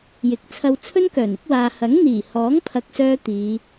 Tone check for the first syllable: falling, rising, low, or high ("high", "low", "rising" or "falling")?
rising